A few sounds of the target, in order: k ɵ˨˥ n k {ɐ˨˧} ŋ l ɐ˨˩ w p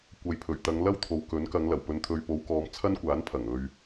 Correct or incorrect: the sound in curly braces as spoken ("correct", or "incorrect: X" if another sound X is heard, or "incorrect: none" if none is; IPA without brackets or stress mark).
correct